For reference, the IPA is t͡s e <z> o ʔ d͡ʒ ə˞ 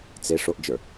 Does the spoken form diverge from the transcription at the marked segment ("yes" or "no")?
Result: yes